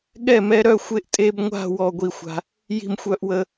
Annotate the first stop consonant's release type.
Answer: implosive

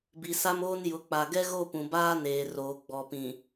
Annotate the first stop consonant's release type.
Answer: plain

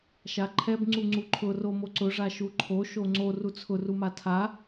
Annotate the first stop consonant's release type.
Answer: click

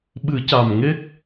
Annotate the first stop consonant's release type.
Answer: implosive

